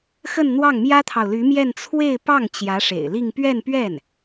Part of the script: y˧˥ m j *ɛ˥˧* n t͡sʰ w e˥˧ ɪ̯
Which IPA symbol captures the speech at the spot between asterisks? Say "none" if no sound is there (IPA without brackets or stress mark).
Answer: ɛ˥˧